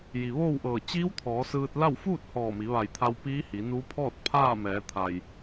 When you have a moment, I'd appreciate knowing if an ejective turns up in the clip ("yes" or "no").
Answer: no